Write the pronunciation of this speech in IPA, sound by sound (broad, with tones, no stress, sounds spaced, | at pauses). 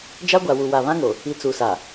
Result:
d͡ʒ a˦ ɡʷ a˨ w u˨ w a˨ β ã˦ ŋ o˨ | i˨ t͡s u˨ s a˨